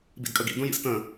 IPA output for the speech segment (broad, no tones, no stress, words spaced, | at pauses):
bḭdkʼəɡḭ dũjḭstə̃